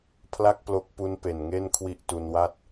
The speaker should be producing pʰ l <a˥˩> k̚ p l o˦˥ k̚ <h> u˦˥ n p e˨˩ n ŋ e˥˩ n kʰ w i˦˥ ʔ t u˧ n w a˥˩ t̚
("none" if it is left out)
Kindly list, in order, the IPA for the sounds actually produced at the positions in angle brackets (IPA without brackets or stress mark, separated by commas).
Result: a˥˩, p